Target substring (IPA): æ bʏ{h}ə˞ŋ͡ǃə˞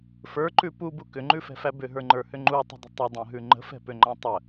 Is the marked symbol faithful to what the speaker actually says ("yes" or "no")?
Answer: no